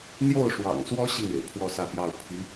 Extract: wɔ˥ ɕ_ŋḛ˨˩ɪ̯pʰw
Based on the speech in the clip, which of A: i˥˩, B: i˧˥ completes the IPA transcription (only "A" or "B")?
A